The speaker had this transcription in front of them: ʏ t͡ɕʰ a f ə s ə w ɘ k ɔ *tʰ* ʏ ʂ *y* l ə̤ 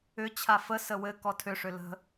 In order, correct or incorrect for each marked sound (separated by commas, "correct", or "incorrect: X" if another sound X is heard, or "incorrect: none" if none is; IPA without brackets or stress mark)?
correct, incorrect: ʏ